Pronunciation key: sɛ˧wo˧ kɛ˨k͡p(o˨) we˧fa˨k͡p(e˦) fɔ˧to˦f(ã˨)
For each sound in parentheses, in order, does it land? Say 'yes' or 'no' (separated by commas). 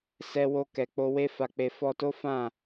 no, no, no